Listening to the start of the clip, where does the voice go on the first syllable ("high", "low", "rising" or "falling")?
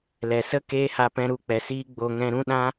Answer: low